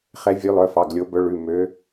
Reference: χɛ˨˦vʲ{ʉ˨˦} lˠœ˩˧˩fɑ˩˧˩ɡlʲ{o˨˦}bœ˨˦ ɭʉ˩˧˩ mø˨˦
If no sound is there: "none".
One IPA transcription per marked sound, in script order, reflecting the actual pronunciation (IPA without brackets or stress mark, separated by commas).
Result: ʉ˨˦, o˨˦